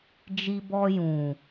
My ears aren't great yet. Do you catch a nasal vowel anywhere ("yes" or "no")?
yes